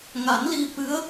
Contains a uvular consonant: no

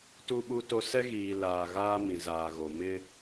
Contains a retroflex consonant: no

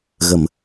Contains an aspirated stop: no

